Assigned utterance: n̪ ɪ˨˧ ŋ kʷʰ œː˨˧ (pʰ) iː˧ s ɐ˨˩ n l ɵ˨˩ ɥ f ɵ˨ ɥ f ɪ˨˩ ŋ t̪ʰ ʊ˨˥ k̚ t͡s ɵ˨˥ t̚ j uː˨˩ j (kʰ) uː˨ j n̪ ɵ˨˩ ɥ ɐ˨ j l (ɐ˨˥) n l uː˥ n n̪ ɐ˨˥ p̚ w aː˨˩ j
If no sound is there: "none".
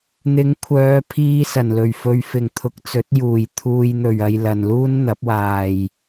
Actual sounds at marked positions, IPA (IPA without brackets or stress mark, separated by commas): pʰ, t̪ʰ, ɐ˨